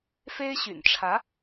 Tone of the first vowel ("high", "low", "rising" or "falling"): high